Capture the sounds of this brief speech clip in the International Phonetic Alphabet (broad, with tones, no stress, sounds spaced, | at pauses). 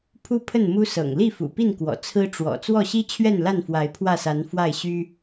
pʰ u˦ pʰ ə˥˨ n m u˦ s ɤ̰˨˩ ŋ l i˥˨ f ṵ˨˩ p i˥˨ n k w ɔ̰˨˩ t͡sʰ ɹ̩˦ ʈ͡ʂ w ɔ̰˨˩ t͡s w ɔ˥˨ ɕ i˦ t͡ɕʰ ɥ ɛ˥˨ n l a˥˨ n f w a˨˦ ɪ̯ pʰ w ä˥˨ s a˨˦ n f w a˥˨ ɪ̯ ɕ y˦